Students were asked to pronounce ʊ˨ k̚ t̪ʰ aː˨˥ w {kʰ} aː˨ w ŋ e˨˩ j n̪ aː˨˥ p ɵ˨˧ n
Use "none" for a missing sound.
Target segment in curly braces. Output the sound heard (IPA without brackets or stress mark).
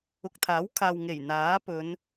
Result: kʰ